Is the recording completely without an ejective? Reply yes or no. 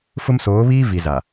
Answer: yes